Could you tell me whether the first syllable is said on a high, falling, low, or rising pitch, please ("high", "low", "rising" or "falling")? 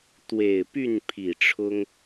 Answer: low